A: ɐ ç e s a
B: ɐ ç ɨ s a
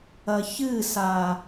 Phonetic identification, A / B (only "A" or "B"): B